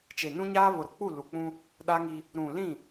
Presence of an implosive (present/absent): present